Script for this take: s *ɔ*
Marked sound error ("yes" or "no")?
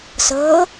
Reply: yes